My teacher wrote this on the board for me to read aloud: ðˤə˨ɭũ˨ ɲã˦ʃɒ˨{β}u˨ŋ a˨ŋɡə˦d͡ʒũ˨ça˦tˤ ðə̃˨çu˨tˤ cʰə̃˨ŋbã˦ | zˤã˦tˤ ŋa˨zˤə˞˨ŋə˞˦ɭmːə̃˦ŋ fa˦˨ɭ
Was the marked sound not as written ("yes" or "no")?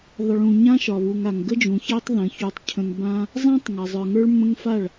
no